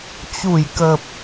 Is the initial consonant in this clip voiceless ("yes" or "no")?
yes